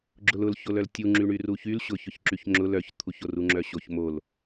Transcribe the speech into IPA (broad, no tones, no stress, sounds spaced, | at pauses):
ɡ͡ǁ ʊ l ʊ l ç o l œ l tʲ u ŋ͡ǁ y ɳ y r u ç y l ɕ ʊ ç ʊ ç ǁ y ç ŋ͡ǁ ʊ l œ ç t̪ʰ u ç o r u ŋ͡ǁ œ ɕ o ç m o l